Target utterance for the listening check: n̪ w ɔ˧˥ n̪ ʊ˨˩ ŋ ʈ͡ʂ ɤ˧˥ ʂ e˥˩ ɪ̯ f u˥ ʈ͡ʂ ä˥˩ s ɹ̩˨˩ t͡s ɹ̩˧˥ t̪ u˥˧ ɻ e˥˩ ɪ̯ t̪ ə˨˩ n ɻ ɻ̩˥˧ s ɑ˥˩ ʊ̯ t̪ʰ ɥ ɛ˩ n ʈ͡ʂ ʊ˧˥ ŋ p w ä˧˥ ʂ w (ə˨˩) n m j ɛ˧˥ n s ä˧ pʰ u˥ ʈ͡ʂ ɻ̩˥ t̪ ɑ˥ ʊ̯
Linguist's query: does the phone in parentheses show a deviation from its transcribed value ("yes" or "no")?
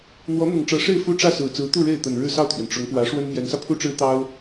yes